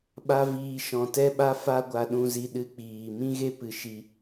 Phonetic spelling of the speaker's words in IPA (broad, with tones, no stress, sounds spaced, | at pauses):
ɓ a˧ v iː˨ ʃ ɔ̃˨ t ɛ˦ ɓ a˦ f a˧ ɡʷ a˨ ɗ ũ˨ z i˨ ɗ ɨ˧ k͡p iː˨ m ĩ˦ ɣ e˦ p ɨ˨ ʃ i˧